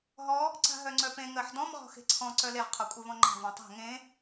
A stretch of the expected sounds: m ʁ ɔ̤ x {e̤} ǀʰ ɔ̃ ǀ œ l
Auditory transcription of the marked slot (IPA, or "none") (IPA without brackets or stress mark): e̤